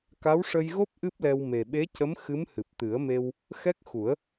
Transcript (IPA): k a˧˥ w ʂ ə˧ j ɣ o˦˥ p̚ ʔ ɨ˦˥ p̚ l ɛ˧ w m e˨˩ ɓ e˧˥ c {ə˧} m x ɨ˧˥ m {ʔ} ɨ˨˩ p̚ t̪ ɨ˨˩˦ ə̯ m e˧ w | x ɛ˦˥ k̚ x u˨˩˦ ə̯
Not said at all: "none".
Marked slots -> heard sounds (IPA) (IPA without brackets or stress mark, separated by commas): ə˧˥, h